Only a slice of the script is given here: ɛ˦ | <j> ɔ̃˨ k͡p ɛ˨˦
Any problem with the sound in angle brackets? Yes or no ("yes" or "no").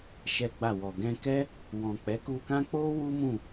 yes